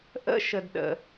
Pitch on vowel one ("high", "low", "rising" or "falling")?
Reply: falling